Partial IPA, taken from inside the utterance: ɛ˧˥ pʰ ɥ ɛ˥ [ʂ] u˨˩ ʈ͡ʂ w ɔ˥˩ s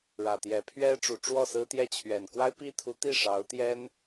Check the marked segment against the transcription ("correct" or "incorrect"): incorrect